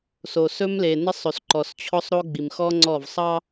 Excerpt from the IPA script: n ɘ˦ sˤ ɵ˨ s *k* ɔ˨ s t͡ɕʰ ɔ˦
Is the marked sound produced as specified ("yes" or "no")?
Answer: no